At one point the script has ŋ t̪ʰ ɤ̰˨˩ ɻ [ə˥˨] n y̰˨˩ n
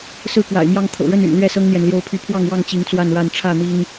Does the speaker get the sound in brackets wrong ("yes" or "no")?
no